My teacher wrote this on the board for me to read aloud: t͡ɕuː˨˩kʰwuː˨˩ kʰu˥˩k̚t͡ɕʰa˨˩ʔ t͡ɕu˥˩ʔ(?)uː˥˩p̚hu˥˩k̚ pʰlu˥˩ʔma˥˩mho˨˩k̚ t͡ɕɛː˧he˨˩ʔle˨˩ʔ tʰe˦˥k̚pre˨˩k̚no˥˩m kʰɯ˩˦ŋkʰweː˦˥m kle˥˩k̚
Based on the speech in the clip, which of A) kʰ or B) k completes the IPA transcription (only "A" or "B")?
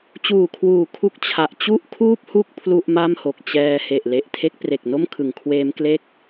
A